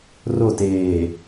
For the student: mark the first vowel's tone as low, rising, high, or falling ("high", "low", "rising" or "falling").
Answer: falling